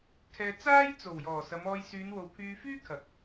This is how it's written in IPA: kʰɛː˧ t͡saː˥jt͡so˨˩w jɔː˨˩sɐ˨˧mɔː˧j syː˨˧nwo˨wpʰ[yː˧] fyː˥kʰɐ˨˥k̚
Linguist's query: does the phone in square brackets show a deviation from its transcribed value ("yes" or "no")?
no